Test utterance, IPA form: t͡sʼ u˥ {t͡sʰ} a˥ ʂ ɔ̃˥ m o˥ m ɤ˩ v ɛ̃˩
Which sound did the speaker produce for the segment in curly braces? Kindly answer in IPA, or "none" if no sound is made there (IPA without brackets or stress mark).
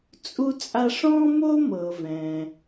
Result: t͡sʼ